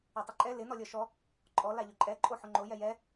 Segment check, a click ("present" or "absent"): present